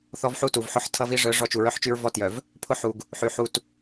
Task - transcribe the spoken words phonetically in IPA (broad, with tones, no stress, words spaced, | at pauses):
θɔ˦vħu˦tu˨vħʊ˦ħ tʰʌ˦vi˦ ʐœ˨˦ ʐɔ˦t͡ʃu˨ ɹœ˦ħt͡ʃy˦ɹ vɔ˦tjœ˨v | pʰʊ˦ ħu˨ɡ | ħy˨ ħu˨t